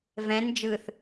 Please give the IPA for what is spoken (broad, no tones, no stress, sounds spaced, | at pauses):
v ɛ̃ n d͡ʒ ɯ θ